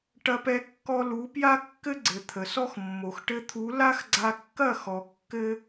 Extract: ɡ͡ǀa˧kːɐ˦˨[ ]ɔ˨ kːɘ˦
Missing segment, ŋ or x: x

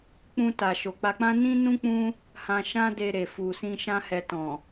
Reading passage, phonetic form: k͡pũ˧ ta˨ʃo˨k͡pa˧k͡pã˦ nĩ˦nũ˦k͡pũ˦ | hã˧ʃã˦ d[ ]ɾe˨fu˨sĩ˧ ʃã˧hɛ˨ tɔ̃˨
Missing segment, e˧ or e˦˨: e˧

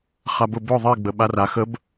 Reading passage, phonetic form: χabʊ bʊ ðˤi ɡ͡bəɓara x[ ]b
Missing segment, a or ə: ə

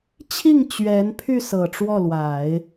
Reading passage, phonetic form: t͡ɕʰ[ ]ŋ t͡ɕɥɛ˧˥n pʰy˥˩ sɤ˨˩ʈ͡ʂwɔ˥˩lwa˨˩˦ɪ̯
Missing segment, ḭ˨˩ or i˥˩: i˥˩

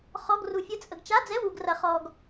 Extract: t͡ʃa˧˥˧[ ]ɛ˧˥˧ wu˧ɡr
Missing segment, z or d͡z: d͡z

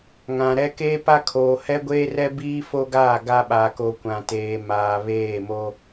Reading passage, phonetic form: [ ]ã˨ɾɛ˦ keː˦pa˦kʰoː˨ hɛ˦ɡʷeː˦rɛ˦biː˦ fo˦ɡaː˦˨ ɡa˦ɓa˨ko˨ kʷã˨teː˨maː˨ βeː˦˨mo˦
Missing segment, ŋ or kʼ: ŋ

